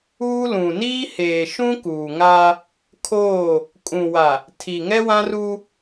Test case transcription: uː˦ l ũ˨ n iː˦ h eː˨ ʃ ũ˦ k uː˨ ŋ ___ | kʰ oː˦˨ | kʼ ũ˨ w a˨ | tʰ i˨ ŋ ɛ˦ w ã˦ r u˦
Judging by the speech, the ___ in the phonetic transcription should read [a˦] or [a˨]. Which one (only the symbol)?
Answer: a˦